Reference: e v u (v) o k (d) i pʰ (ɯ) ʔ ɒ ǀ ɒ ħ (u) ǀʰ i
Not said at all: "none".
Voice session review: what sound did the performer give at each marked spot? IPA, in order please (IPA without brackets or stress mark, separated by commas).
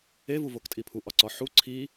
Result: v, tʼ, u, u